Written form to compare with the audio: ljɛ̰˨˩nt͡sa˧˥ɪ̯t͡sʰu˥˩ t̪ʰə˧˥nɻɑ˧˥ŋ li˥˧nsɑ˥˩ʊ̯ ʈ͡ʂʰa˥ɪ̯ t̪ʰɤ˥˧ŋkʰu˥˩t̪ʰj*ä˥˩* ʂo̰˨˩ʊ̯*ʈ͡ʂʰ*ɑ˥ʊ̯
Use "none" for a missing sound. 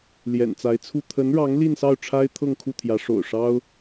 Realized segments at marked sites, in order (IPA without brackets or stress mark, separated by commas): ä˧˥, ʂ